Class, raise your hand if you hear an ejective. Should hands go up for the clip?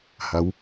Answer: no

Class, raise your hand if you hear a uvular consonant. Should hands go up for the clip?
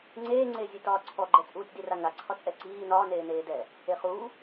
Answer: yes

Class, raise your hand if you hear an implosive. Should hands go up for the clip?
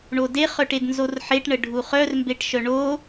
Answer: no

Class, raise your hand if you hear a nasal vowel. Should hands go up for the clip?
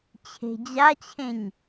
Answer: yes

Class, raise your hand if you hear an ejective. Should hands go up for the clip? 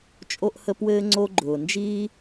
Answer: yes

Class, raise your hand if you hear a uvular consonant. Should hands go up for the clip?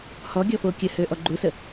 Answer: no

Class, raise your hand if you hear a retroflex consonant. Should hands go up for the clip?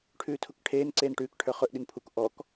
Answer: yes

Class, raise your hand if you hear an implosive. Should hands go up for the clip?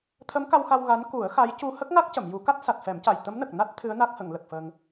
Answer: no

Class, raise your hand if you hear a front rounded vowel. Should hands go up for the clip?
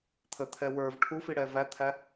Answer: no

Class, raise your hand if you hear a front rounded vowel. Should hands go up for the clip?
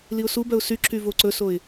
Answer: yes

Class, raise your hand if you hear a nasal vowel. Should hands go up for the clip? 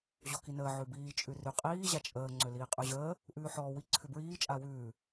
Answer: no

